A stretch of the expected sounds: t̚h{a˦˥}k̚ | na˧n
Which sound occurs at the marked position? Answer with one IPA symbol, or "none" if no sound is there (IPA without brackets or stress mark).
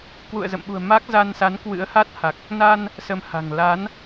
a˨˩